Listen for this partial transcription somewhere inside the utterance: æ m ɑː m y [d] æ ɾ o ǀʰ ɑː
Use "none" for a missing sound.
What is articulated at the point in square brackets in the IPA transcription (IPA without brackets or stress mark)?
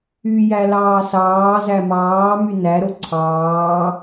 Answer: n